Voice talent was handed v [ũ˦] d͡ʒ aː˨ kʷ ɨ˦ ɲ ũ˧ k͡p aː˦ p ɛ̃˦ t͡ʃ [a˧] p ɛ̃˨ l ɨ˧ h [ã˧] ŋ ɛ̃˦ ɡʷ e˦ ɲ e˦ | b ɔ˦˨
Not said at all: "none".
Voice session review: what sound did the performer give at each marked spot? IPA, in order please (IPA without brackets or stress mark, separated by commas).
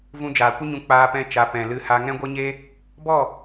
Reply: ũ˧, a˧, a˧